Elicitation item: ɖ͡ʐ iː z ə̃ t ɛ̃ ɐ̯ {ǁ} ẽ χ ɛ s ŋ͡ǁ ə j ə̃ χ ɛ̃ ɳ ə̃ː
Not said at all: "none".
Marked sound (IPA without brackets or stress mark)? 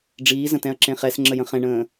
ǁ